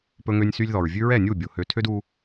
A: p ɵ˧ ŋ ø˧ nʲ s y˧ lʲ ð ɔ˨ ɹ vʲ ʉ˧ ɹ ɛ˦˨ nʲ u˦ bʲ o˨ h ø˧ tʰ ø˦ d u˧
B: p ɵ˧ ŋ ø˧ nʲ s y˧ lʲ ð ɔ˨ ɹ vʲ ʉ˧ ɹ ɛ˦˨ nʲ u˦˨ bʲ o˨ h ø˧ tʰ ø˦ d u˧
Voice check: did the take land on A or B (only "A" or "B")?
B